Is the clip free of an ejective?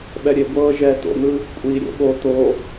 no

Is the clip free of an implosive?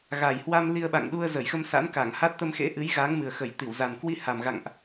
no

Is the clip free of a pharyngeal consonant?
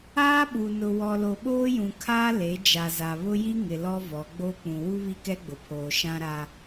yes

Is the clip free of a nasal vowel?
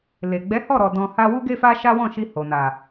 no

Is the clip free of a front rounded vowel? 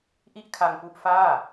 yes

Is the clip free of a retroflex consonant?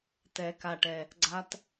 no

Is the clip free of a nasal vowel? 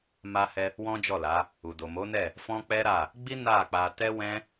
no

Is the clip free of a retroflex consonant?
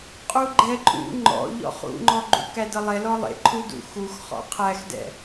yes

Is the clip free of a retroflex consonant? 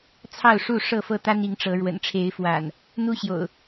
no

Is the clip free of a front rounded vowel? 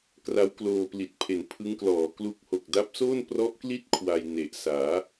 yes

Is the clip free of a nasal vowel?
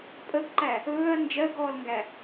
yes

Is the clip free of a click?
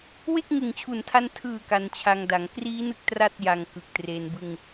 yes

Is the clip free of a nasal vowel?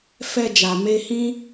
no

